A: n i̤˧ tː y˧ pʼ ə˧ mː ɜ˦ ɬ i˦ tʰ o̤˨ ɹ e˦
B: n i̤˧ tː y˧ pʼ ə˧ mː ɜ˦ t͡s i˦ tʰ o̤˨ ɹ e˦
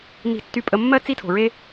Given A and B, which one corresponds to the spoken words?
B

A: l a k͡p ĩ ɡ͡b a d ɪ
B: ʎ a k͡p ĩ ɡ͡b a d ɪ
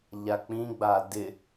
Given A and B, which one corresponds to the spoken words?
B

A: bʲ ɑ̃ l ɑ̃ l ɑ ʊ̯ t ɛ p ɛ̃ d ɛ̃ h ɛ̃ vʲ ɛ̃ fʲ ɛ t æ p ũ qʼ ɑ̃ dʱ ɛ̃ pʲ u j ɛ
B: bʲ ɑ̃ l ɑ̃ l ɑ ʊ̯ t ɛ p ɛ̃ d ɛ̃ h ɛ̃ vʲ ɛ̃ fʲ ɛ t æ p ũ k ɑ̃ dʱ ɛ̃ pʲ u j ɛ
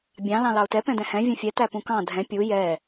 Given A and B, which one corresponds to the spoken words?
B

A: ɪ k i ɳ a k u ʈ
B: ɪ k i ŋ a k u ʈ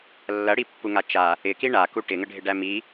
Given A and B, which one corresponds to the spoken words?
A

